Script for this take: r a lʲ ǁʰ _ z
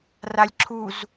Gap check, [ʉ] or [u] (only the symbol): u